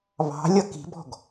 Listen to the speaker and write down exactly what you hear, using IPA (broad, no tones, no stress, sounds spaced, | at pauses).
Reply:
β ɑ̤ lʲ ʌ k i̤ b ɔ̤ ɡ